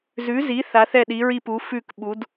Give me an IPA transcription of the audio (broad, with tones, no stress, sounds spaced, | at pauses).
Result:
z ʉ˩˥ z i˩˥ θ a˩˥ θ ɛ˥˩ ɗ i˩˥ ɹ i˥˩ p u˩˥ f ʉ˥˩ k ɓ u˩˥ d